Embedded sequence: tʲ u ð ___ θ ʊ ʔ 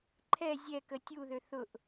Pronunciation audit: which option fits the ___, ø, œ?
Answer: ø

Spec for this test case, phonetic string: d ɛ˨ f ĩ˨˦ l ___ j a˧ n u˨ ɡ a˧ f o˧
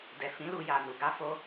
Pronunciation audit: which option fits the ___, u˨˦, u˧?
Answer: u˧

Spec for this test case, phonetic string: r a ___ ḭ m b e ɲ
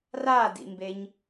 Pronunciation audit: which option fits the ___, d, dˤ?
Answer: d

